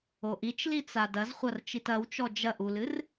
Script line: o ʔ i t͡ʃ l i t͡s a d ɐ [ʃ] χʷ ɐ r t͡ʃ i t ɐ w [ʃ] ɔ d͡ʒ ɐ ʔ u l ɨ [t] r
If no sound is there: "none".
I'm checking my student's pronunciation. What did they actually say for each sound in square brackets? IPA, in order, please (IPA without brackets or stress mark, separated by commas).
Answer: z, t͡ʃ, none